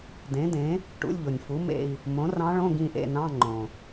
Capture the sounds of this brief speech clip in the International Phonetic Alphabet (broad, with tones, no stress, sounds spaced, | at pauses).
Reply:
d ẽ˩˥ d ẽ˩˥ | ʈ ṵ˧˥˧ lʲ ʎ o˩ nʲ f u˩˥ m ḛ˦˨ i̯ | m õ˩˥ r ɑ̃˧˥ ɭ õ˧˥˧ ɡ ĩ˦˨ ʔ ḛ˦˨ n ɑ̃˧˥˧ ŋ͡ǃ õ˩